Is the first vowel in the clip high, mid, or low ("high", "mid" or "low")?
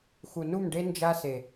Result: high